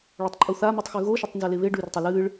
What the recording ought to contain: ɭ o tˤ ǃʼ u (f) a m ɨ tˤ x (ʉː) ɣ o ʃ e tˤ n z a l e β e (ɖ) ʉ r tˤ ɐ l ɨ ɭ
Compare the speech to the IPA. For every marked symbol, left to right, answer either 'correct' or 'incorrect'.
incorrect, incorrect, correct

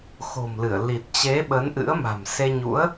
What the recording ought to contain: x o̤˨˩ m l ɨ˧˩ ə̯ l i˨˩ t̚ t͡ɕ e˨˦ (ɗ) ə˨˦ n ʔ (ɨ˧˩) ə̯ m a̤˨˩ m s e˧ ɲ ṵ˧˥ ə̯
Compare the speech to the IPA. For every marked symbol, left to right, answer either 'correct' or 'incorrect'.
incorrect, incorrect

